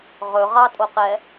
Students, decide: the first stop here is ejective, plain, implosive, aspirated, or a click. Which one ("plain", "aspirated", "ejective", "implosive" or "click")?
ejective